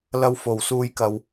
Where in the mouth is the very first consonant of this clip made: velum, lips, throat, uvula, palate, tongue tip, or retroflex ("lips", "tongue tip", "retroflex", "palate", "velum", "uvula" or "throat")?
tongue tip